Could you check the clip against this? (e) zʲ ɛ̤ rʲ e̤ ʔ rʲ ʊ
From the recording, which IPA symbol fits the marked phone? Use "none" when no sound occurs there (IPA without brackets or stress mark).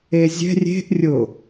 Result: e